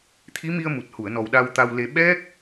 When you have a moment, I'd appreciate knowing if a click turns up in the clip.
no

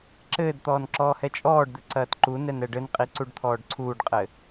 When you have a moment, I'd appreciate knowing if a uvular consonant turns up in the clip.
yes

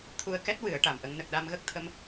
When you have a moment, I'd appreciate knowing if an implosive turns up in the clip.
yes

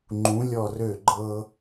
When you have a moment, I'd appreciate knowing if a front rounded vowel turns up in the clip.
yes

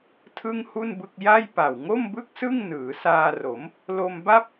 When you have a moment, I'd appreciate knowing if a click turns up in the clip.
no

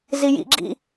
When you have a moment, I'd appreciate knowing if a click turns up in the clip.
yes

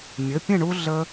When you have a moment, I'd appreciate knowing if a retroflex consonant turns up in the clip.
yes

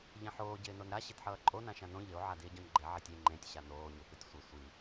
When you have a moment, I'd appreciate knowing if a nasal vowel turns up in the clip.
yes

